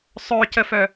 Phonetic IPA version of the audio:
sˤœcəfœ

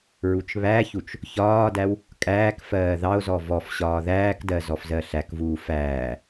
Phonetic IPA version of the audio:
ɹut͡ʃβæçut͡ʃ | çɒːdæw | kʼæːkfɜː ðɑo̯zɔ vɔf ɕɒːðæːkdɜ zɔfzɜɬækvuː fæː

